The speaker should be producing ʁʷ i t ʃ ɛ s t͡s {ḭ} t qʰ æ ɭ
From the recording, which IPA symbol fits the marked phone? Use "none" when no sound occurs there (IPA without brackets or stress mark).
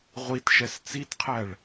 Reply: i